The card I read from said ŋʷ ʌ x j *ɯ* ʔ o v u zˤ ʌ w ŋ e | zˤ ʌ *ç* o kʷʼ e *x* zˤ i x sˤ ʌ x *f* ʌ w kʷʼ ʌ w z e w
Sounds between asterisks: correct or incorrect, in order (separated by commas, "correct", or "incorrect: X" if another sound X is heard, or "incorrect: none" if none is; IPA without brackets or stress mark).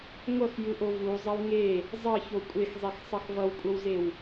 correct, correct, correct, incorrect: v